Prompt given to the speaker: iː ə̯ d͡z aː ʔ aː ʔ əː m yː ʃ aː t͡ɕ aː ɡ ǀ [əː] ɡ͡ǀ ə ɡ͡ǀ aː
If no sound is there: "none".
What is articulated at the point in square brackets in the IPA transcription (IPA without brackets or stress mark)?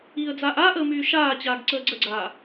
əː